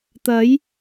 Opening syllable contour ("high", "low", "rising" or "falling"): rising